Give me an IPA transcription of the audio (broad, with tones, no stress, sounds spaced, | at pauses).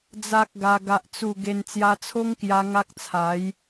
d͡z a˦ k̚ ɡ a˧ ɡ a˨ ʔ t͡s u˨˩ ɡ e˧ n t͡s j a˧ t͡sʰ o˦ ŋ k j a˧ ŋ a˦ k̚ t͡sʰ a˨˦ j